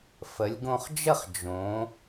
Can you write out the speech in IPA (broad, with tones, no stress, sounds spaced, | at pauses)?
f ə˩˧ lʲ ɡ õ˧ χ d͡ʒ ə˥˧ χ d͡ʒ õ˩˧